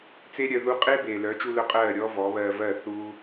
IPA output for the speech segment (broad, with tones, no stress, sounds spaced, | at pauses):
t͡s e˦ ɾʲ œ˧ ð u˧ qʼ e˦ b eː˨ l œː˨˦ t͡ʃ u˧ l œ˧ qʼ ɜː˦˨ ɾʲ ɔː˦ v ɔː˨˦ β ɜː˧ v ɜ˦˨ θ uː˦